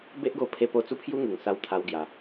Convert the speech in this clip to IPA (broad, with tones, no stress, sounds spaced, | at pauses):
b e˦ ʔ ɡ o˧ pʰ e˧ p o˥˧ t͡s u˦ pʰ j u˦ ŋ u˨˩ ŋ s a˧ w t̪ʰ a˦ w ɡ j a˧